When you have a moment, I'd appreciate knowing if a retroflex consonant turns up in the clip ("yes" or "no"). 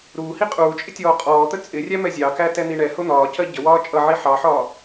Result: yes